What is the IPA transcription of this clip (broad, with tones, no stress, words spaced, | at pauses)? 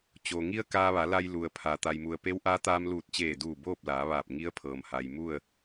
t͡ɕoː˩ ŋi˧ə̯ kaː˧ʋa˩˧ la˧jlu˩ə̯ pʰa˩ t̪a˩jmu˩ə̯ pe˧˥wʔaː˧˥t̪aː˧m luː˧˩t̚t͡ɕeː˧˩duː˧˩ boː˥˨p̚laː˩˧ʋaː˧˩p̚ ŋi˧˥ə̯pʰɤː˩m ha˩jmu˥˨ə̯